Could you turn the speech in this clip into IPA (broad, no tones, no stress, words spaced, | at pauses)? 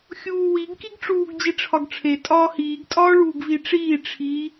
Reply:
xʲuːwiɡ kiɡʈ͡ʂuːɡ d͡ʑiʈ͡ʂʰɒɡʈ͡ʂʰe tʼɒːhiːɡ tʼɒːɭuːɡviʈ͡ʂiː ʈ͡ʂʰi